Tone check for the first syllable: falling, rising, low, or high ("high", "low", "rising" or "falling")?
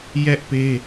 high